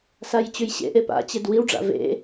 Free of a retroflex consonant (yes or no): no